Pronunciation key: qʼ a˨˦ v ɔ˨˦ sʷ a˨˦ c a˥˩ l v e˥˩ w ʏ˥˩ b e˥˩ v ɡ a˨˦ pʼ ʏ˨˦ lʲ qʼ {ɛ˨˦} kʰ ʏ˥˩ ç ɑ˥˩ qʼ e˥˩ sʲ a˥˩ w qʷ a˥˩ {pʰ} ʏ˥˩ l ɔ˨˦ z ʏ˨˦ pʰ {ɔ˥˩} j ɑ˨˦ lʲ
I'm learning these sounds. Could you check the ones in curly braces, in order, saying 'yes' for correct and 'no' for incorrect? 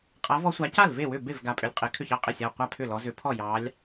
no, yes, yes

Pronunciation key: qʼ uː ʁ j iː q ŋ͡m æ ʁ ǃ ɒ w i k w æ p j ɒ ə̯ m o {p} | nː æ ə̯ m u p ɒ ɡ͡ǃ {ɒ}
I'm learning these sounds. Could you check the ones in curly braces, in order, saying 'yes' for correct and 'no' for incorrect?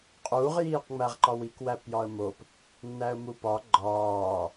yes, no

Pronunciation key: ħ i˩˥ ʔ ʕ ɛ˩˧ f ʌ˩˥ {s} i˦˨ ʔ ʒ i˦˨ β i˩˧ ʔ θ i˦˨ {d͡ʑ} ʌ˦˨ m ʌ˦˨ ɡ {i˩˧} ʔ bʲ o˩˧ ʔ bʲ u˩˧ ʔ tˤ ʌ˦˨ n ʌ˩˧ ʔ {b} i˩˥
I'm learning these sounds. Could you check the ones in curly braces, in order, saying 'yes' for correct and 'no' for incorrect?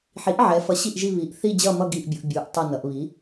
no, yes, no, no

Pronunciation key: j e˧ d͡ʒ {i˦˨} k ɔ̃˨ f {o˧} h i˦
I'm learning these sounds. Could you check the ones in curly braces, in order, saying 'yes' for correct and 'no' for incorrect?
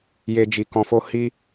no, yes

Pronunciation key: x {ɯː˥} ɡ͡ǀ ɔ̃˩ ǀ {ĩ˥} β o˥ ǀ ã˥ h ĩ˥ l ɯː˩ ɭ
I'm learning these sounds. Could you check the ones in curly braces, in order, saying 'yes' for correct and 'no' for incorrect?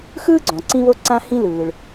yes, yes

